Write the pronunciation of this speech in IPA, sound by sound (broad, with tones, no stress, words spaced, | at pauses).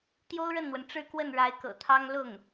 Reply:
t̪jo˥ʊ̯ɻə˥˩nn̪wə˩n ʈ͡ʂɻ̩˥˧kwə˥˩n ɻa˧˥ɪ̯kɤ̰˨˩t̪ʰɑ˥ŋ lʊ˥˩ŋ